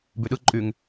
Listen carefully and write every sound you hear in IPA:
byɗɯ ǃʼyŋ

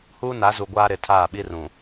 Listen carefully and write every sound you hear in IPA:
huː˦na˨˦zu˨ ɡʷaː˦ ɾɪ˨ tʰaː˦˨ɓi˦rũ˨

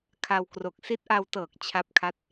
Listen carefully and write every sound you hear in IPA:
kʰa˧wkro˨˩k̚ si˦˥t̚ʔa˧wtɤː˨˩k̚ t͡ɕʰa˦˥p̚kʰa˦˥t̚

